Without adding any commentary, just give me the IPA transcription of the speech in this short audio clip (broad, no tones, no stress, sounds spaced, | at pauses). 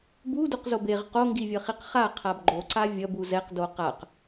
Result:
b u d u q z o b e ʁ q o ŋ ɡ i vʲ ʌ χ i q χ a qʰ a b ɡ͡ǃ o ǀ a vʲ ʌ b u z ɛ q d o q a q